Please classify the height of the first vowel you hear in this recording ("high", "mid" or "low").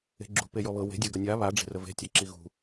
mid